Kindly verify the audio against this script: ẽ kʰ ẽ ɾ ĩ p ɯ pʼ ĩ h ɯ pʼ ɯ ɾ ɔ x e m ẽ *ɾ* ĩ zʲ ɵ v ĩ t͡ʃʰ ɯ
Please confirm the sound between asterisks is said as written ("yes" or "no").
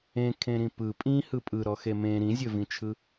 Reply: yes